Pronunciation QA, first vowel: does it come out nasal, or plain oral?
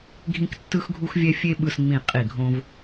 nasal